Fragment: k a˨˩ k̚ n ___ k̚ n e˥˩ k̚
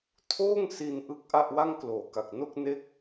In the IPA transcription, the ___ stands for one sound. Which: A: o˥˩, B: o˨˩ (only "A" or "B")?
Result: A